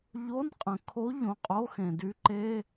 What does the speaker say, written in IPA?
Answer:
ʎo˧˥˧nqʼə̃˩kʰo˧˥ ʎõ˩˧˩qʼo˧˥˧xẽ˩ dy˧˥ǃe˧˥˧

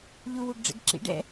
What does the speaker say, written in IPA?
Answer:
ʎuwuɡɖ͡ʐɛ̰ɡ ǁḭɖ ɛ̰

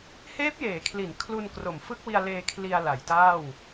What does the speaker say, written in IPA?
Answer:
heː˦˥p̚jeː˩˦kʰli˩˦n kʰlu˧n kro˩˦mfɯ˦˥k̚wi˧a̯ leː˧ kʰli˧a̯la˩˦jtaː˥˩w

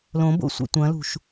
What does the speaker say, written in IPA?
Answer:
lõbo̰sʷḭ tʷɐ̃lṳʃ

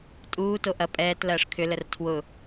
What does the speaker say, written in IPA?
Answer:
tʼuː toʔɐ pʼɛːt lɐːʂkʰʏ lərtʰwʊ

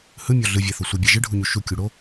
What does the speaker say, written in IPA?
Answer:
hɯmʲɔ ɮɯvʲæθo sʷɯbʲæ ʒɯɖʱuɲu ʃukʲuɽo

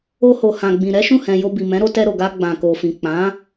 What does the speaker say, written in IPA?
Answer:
o˧ho˨ hã˨ɡ͡bĩ˨ɾɛ˨˦ ʃũ˦˨hɛ̃˨ jo˧bi˨mɛ̃˨˦ɾo˧ tɛ˧ɾo˨ɡa˧ ɡ͡bã˨ko˨fĩ˨ k͡pã˨˦

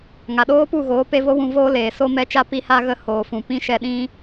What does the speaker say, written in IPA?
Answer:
ŋa˨ɗoː˦pu˦˨ɣoː˨˦ pe˧vo˦wũ˧voː˦ leː˨ so˧mɛ˨˦t͡ʃa˧ pi˧ha˧ɣə˧ hoː˨fũ˨ pĩ˦ʃɛ˧ɗĩ˦

